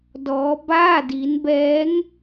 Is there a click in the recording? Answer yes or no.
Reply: no